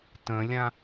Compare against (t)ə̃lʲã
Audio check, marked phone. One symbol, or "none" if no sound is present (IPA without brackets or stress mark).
t